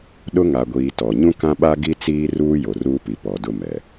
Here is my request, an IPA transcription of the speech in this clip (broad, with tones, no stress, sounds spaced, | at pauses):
ɗ ʊ˦ ŋ a˨ ɡʷ iː˨ t ɔ˨ ɲ ũ˦ k ã˦ ɓ a˦ ɡ i˦ t͡s iː˦ r uː˦ j o˨ r uː˦ p i˨ p ɔ˨ d ʊ˦ m ɛ˨